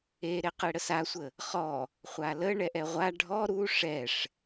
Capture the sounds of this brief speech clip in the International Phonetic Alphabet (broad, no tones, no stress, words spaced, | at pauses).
eɾe qeɽəsasʷə | χɔ | χʷalə ɳɛʔɛʁʷa ɖʱɔ ɾu ʂɛʂ